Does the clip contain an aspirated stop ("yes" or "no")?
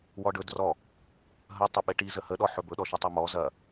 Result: no